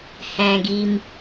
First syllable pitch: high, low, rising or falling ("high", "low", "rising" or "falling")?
low